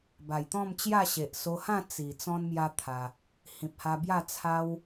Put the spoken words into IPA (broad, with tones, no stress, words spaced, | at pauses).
ba˨˩jt̪ɔ̃˥˧mt͡ɕja˥˧ ɕe˨ʔso˧hã˥˧ t͡si˨˩ t͡sɔ̃˦nmja˦t̪ʰa˧ | hĩ˨p̚ha˧bja˥˧ t͡sʰa˦w